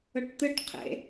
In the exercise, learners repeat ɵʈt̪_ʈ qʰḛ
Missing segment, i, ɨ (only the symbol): ɨ